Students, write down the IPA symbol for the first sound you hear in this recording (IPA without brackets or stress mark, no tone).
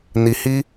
n